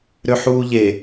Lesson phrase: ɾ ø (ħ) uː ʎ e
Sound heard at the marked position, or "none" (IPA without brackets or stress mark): ħ